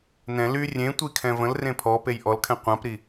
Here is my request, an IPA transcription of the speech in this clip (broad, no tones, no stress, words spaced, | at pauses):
nɛ̃ ly rʲẽtʷikʰɛ̃ və̃lrẽ pʰɔpej ʔɔlkʰɛ̃ qʷãpɾi